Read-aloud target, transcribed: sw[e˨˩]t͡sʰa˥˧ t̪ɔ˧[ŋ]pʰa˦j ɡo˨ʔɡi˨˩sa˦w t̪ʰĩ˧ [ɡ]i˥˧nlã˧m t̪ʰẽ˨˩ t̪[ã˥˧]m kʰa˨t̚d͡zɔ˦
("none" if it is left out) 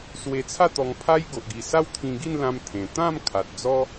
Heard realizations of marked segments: e˧, ŋ, ɡ, ã˥˧

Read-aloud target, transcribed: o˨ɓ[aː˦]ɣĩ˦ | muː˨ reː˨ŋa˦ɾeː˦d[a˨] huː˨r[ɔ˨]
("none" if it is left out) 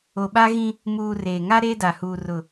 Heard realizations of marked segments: a˦, a˨, ʊ˨

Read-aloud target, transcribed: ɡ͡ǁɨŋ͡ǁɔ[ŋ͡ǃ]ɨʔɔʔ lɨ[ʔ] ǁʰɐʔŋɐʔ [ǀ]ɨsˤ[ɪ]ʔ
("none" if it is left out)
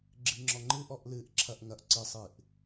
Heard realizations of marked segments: ŋ͡ǃ, ʔ, ǀ, ɨ

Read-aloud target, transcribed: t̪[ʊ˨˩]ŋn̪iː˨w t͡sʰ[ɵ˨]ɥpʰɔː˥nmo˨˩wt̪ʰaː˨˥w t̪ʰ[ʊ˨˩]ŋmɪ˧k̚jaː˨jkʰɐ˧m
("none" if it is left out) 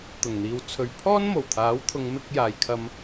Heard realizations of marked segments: ʊ˨˩, ɵ˨, ʊ˨˧

